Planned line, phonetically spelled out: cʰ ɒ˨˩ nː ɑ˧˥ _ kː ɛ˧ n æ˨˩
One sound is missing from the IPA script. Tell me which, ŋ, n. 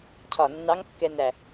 ŋ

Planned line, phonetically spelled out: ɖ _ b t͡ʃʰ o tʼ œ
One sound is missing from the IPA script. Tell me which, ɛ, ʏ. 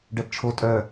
ɛ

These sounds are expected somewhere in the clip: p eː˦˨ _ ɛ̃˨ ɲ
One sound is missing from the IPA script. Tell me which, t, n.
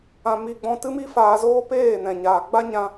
n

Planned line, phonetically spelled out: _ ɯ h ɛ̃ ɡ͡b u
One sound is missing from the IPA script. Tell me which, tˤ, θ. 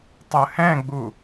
tˤ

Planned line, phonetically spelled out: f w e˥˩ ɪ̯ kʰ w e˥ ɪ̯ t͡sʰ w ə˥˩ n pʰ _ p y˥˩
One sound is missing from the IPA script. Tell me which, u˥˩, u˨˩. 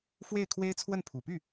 u˨˩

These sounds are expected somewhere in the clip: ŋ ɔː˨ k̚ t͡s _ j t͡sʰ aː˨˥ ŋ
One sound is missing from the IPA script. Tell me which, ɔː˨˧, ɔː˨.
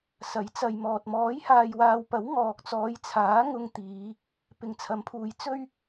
ɔː˨˧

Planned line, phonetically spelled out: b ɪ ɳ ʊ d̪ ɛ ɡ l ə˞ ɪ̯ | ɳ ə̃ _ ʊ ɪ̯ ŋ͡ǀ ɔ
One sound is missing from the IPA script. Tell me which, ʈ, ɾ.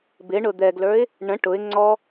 ʈ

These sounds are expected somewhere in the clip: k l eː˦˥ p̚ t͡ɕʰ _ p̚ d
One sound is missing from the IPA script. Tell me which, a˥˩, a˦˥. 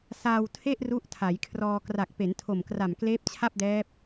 a˥˩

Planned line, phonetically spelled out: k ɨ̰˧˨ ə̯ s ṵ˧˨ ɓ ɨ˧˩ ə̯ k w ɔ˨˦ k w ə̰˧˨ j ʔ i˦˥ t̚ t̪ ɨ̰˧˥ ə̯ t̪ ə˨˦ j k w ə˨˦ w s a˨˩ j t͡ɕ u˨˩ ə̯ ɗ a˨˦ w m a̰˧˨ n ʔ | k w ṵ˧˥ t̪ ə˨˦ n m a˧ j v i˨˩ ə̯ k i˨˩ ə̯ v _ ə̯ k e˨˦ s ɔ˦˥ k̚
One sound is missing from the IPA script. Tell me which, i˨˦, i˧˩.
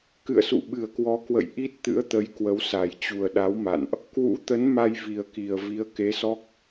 i˨˦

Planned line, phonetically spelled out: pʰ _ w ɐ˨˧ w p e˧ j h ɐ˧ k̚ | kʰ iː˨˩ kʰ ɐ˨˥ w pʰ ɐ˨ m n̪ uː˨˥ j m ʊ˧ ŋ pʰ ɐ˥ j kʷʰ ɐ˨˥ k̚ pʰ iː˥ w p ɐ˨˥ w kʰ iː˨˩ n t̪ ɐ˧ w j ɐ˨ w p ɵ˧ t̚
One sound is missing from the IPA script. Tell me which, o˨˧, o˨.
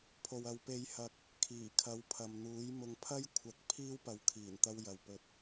o˨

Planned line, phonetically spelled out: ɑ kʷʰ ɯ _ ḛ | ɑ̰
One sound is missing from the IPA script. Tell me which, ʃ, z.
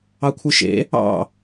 ʃ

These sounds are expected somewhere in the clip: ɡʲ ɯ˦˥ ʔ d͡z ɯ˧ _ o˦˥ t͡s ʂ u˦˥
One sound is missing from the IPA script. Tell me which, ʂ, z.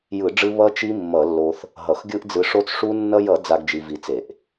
ʂ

